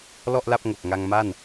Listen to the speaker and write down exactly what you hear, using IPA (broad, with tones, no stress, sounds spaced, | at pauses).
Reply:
l ɔ˥˩ ʔ l a˥˩ p̚ ŋ o˨˩ k̚ ŋ a˧ ŋ m a˥˩ n